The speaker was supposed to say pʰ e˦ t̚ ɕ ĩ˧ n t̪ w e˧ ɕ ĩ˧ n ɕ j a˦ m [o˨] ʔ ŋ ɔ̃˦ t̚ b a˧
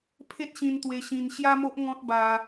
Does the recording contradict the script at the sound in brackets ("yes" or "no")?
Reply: yes